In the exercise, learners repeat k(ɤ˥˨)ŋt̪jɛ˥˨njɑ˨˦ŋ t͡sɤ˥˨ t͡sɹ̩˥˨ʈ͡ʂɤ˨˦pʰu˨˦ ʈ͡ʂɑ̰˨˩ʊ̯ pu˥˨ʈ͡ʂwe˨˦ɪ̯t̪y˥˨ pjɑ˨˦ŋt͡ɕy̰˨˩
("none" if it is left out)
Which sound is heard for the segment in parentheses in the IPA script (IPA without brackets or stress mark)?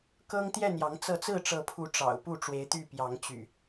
ɤ˦